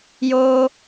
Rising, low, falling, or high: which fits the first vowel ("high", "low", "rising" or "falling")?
high